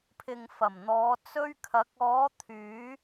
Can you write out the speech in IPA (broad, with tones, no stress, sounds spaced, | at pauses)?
pʰ ɪ˨ ŋ f ɐ˨˩ m n̪ ɔː˨˧ t͡s ɵ˧ ɥ kʰ ɐ˨˥ k̚ ɔː˨˧ t̪ʰ yː˨˧